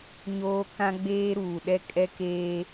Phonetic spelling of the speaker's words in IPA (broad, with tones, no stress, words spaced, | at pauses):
ɲoː˦ kã˦ɡ͡beː˦ ɾuː˨ɗɛ˦ kʼɛ˦keː˦